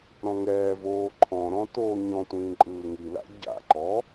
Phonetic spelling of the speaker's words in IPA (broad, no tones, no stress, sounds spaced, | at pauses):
ɾ ɔ̃ ŋ ɛː v oː ǃʰ ɔ̃ ɾ ɔ̃ t oː ɲ ɔ̃ tʷ ĩː ǃʼ ɯː ŋ i l a̰ ɟ a̰ ǃ ɔ